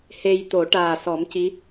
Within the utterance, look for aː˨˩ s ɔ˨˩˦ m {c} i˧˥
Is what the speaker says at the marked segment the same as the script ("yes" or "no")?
yes